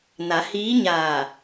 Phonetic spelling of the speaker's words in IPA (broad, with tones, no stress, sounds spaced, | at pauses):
n a˩˧ h iː˧˥ ɲ aː˧˩